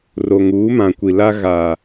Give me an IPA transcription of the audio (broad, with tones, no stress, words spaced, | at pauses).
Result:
ro˨ŋuː˨˦mã˨kʷi˨ la˦ ɣa˨